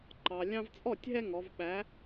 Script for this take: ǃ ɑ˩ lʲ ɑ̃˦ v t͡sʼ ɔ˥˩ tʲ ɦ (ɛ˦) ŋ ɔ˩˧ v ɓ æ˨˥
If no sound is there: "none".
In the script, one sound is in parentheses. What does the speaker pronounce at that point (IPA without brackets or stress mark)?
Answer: ɛ˦